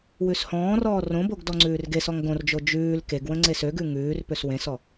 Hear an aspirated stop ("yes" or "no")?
no